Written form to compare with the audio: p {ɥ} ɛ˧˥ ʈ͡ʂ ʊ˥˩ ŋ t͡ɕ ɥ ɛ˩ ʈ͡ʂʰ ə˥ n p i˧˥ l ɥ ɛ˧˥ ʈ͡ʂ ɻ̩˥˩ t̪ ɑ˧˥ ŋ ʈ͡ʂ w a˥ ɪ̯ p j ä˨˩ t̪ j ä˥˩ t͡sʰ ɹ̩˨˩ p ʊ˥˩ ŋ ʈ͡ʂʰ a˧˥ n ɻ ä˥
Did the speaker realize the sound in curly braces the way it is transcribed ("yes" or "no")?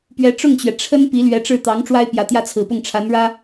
yes